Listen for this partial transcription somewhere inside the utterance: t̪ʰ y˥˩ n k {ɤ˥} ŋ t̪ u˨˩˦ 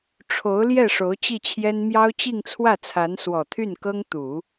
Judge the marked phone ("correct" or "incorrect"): correct